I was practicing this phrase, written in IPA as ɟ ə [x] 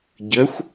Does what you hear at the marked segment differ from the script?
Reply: yes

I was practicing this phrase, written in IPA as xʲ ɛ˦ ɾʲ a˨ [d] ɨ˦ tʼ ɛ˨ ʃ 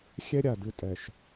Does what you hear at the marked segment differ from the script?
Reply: no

